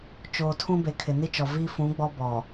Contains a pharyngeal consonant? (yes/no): no